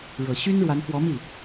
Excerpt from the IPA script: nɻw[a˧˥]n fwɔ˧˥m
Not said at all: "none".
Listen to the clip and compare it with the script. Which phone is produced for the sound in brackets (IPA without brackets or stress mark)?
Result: a˧˥